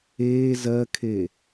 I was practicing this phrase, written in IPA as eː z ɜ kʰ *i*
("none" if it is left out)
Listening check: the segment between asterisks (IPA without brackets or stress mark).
e